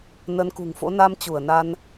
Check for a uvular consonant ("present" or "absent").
absent